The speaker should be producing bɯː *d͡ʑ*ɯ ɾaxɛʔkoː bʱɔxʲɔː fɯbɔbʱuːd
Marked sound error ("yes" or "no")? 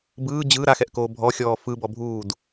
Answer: no